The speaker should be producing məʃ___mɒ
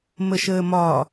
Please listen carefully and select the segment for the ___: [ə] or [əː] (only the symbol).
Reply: əː